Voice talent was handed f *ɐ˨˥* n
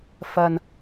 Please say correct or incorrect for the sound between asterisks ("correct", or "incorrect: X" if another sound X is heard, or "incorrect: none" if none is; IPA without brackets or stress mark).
incorrect: ɐ˧